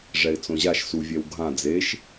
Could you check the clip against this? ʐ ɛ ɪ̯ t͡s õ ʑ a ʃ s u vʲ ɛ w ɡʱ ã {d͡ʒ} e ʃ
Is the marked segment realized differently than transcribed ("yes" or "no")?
yes